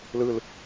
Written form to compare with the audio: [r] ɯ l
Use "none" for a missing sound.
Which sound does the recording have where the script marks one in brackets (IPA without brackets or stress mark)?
l